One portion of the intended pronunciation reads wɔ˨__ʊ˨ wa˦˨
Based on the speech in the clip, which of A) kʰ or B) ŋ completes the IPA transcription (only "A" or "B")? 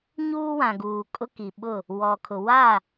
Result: A